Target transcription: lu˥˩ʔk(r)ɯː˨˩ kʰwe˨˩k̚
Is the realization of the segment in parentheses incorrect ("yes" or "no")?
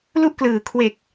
yes